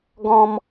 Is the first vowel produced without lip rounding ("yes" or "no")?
no